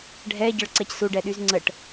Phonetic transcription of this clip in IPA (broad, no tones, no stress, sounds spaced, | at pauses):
ɖʱ ɛ ɟ ə ɭ ǀ ɛ c s u ɖ ɛ ɗ y z ŋ͡ǀ ə ʈ